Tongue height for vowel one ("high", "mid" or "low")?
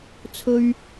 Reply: mid